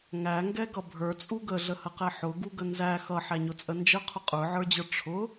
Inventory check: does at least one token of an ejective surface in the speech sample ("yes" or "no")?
yes